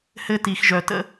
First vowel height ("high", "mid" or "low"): mid